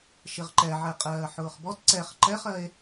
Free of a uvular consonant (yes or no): no